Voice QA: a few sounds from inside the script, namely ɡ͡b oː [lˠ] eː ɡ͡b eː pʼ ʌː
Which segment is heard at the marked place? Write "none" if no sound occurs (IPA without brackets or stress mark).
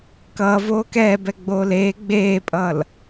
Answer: l